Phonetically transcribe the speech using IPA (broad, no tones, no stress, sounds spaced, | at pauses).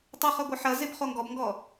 tˤ ɪ χ œ ɡʷ ɐ ħ ɐ z ɪ b χ o ŋ ɡ ɔ b ŋ ɡ ɔ